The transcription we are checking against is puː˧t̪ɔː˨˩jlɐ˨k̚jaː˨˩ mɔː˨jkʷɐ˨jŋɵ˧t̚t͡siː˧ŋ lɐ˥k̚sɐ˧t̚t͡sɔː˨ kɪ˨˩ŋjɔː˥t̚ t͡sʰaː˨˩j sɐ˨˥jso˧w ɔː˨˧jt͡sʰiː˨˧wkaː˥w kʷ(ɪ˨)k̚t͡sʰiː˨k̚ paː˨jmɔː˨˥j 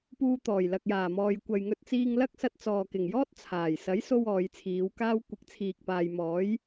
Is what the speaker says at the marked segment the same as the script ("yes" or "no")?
no